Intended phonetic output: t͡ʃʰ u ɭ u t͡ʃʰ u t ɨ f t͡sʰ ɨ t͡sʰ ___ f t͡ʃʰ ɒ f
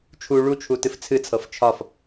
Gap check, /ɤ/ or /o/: ɤ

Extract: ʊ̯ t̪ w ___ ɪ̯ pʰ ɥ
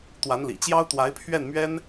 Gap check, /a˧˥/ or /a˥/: a˧˥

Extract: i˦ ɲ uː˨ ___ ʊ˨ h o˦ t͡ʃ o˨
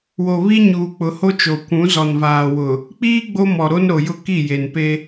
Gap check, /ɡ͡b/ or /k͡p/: k͡p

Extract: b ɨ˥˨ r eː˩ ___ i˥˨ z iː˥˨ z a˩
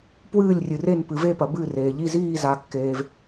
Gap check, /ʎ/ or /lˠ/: ʎ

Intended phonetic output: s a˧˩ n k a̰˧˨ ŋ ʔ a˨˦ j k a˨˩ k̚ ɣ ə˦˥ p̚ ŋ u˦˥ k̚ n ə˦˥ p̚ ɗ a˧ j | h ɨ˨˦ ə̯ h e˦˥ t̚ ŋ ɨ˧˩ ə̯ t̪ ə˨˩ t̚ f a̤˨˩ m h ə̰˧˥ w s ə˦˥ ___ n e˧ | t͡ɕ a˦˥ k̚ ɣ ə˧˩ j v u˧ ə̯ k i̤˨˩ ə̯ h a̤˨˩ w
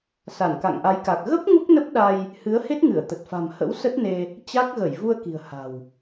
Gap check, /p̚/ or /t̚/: t̚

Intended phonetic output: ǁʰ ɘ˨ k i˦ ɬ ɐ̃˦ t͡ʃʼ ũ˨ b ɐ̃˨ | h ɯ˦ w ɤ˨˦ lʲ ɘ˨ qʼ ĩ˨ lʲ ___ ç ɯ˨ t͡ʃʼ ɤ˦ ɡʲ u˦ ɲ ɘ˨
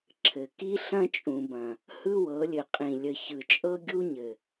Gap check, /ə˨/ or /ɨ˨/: ə˨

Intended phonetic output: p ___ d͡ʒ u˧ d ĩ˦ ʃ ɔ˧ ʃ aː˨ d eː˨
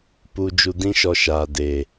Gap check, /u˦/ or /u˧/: u˧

